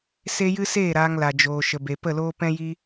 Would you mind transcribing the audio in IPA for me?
se˦jɨ˦seː˦˨ ɾaː˧ŋla˨d͡ʒoː˨ ʃə˨be˨pə˦˨loː˦ pɛ̃˦ji˦

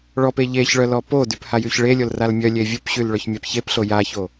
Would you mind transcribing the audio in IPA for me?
ɭɔp eʎeçɭœ lɔpodyp hajyçɭelʲol ralmʲœlʲe vʲupɕyl ɭœçmʲapçepɬo jaço

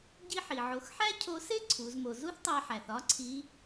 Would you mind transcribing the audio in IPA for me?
ɟi˧ħi˩ʕo˩˧xħæ˥ cʰo˧˥se˥ ǀʰu˩˧zmo˩˧ zu˥θtˤæ˧ħæ˩θ ɒ˥ǀʰi˧˥

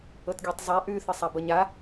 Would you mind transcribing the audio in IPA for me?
ɤtɡʲotˤzˤa ʔʉθɤsˤa bɤɲa

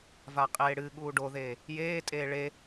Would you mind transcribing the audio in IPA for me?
vaqʼeːɽɨ ɠuːɖoðeː | jeː tʼeːɭe

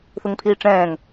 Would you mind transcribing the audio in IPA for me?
θuŋpʰiːʈ͡ʂɛ̃ːŋ

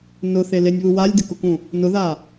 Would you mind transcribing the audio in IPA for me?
nʊθelenʲβu walʲdɪkʊkũ | nʊða

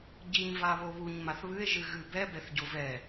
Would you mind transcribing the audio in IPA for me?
ɟiɲ vaβoβuɲ maθβɨe̯ ʒɨɣɨbɛ bɛθɟovɛ

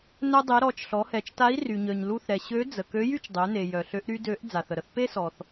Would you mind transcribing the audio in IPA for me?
nœ˧dˤe˩˧ ɾɔ˩˧t͡ʃɬɔ˩˧hɛ˩˧t͡ʃta˧˥i̯ ry˩ɲœ˩ɲlu˧θɾɛ˩ ɕø˧˥ d͡zə˩ kø˧˥jy˥t͡ʃdˤø˩˧ne˩ jœ˩ɬø˧˥ʔɾy˥ dø˧˥ʔ d͡za˩θə˩ɾə˧˥θ pe˥sɔ˩θ

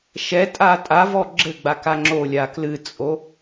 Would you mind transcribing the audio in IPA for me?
ʃɛ tʼatʼavɔ ɡ͡ǁɘɡ͡ba kaŋ͡ǁolʲa klɨt͡sʼo

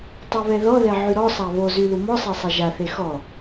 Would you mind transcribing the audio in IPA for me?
tˤoβɛðɔðɛ ʕyɾɔsˤa βozy lumɔsˤe sˤɛʒaθe xɔ

